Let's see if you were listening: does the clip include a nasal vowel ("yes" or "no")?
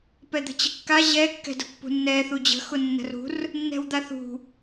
no